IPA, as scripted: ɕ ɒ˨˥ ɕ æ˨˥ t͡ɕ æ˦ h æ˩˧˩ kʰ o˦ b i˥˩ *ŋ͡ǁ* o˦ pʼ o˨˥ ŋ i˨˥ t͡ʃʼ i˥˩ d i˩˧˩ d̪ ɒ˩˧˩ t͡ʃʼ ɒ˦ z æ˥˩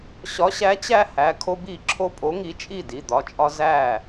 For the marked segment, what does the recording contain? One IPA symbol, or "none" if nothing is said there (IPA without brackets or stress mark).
ǁʰ